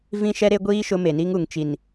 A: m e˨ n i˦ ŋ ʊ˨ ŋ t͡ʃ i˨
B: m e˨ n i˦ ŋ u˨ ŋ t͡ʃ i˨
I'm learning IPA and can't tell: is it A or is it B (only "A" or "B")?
B